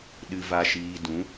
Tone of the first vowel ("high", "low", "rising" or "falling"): low